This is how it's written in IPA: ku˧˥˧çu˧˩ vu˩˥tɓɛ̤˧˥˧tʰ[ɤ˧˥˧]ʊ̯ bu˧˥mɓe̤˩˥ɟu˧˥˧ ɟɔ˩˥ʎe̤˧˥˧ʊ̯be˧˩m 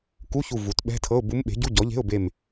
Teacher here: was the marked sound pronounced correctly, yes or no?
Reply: yes